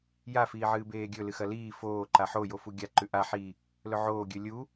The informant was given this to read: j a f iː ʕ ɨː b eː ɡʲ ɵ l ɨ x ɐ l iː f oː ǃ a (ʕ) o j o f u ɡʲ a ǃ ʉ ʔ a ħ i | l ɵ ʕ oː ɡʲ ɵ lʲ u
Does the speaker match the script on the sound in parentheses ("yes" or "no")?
no